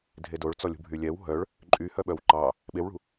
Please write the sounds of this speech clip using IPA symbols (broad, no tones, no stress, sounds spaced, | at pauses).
dʱ e d o ɭ t͡s ɔ lʲ ṳ bʱ y lʲ ɛ w ɦ œ ɭ | ǃʼ y h œ ɓ œ w ǃ ɑ | ɓ e w ɭ ṳ